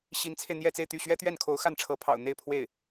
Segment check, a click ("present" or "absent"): absent